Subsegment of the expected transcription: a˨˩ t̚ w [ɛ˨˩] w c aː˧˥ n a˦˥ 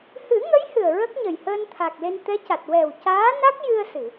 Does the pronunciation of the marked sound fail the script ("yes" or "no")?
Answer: no